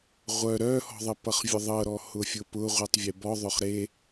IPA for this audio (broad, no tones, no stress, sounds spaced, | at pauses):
ʁʷ œ ɾ œ h ɔ̤ ðˤ ə p ʌ χ vʲ ʊ ðˤ ɤ ɾ ɔ h ʊ fʲ ʊ p ʊ ʁʷ i tˤ vʲ e b ɔ ðˤ ʊ χ ɾ e